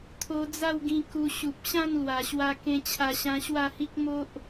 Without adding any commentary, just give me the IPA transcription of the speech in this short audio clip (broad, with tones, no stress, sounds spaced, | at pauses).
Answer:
t̪ʰ o˧ d͡z a˥˧ w ɡ ĩ˧ k u˧ ɕ u˨ p̚ ɕ ã˥˧ n l w a˨˩ ɕ w a˧ k ẽ˧ t͡ɕʰ a˧ ɕ ã˧ ɕ w a˥˧ h i˦ k̚ m o˦ ʔ